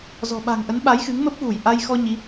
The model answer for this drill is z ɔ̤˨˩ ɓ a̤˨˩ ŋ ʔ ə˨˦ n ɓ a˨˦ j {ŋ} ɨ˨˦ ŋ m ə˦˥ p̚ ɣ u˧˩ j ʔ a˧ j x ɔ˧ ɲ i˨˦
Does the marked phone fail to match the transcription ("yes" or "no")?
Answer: yes